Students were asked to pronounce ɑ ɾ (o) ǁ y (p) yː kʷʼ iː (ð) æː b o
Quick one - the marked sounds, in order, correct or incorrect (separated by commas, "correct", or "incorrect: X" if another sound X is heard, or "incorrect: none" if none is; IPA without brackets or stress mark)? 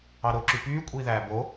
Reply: correct, correct, correct